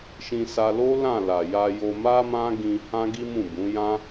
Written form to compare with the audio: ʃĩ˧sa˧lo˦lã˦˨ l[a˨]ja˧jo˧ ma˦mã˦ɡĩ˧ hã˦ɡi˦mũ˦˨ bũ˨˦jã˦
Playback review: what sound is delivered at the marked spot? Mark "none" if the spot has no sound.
a˨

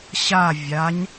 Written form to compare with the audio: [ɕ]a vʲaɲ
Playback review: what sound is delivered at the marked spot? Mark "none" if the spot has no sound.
ɕ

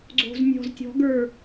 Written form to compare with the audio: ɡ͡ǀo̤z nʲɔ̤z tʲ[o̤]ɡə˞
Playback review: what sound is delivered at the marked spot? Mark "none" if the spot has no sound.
ɔ̤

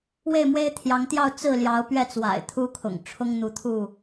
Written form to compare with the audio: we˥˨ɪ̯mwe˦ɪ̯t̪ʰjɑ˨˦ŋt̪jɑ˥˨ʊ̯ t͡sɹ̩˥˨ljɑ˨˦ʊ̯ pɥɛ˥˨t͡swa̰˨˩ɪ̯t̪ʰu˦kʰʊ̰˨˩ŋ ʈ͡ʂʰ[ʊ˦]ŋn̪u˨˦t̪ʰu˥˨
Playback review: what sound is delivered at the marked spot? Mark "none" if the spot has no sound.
ʊ˦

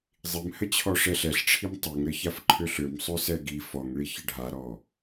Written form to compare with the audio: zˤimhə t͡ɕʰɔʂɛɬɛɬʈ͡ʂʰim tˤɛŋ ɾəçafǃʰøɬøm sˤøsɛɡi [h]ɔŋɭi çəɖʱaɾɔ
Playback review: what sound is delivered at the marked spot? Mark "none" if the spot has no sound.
f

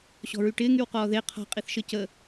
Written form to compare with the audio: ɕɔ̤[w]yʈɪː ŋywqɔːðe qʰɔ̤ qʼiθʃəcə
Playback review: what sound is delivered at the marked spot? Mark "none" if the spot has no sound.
ɹ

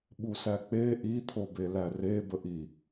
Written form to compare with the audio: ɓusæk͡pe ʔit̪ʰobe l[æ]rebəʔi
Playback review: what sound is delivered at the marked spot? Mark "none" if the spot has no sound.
æ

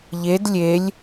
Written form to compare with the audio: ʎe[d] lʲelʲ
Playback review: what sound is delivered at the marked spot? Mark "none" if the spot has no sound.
d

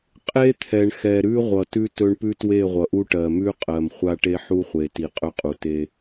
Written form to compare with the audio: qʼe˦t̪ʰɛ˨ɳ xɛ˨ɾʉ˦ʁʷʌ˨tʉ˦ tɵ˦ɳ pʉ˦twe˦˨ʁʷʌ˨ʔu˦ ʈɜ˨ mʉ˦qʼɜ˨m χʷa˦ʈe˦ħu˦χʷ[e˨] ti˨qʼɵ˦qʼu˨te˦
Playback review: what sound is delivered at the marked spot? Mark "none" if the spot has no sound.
e˨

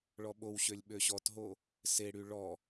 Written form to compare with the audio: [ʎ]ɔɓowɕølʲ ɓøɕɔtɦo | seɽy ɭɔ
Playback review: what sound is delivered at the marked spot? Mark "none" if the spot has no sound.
ɭ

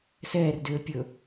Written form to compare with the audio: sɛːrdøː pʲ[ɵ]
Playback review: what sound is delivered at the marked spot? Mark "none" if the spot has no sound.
ɵ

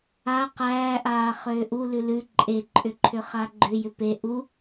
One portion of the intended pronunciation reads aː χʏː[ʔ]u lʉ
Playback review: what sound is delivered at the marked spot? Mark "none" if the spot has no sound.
ʔ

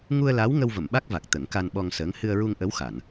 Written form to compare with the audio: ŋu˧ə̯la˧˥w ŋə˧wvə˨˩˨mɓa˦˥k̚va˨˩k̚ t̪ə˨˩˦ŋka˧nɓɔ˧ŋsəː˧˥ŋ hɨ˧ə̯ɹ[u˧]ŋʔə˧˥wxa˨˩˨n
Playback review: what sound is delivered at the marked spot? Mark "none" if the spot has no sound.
u˧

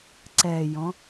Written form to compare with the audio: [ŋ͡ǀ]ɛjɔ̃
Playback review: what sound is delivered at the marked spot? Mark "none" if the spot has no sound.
ǀ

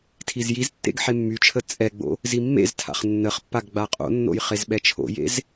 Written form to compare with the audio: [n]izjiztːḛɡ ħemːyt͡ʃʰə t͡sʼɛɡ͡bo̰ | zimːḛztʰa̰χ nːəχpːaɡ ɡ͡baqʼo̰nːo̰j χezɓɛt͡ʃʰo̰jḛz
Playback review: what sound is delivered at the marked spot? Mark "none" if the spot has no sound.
tʰ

